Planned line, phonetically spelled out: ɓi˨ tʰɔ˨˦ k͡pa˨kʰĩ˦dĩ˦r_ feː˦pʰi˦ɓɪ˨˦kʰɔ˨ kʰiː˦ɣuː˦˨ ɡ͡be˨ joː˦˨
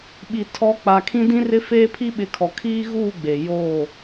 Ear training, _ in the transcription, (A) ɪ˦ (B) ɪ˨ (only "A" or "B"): A